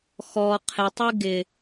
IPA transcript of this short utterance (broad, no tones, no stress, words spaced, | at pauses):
xɔ qʰɪtˤi ɡɪ